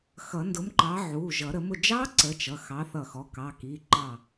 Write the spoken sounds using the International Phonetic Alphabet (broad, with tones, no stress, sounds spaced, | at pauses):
x ʌ˨˩˦ n d ʊ˨˥ m ǃ ɑ˨˥ ʕ u˩˧˩ ʒ ʌ˨˩˦ ɾ ə˨˩˦ m ʊ˧˩ d͡ʒ ɑ˦˥ ǀ ə˨˥ t͡ʃ ʌ˩˧˩ x ɑ˨˥ θ ʌ˧˩ x ɔ˨˥ k ɑ˩˧˩ k i˩˧˩ ǃ ɑ˧˩